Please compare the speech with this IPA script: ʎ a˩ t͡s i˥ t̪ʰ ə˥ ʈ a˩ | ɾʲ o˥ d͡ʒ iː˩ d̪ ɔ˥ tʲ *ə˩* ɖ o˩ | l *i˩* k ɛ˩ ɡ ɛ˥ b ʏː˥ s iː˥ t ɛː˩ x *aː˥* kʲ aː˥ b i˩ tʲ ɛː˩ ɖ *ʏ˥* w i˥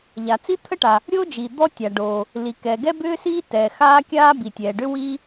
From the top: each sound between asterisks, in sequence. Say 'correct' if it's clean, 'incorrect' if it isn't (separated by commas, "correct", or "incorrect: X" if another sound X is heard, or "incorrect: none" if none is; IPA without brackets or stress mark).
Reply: incorrect: a˩, correct, correct, correct